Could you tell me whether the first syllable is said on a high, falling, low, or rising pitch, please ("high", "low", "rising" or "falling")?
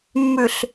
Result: low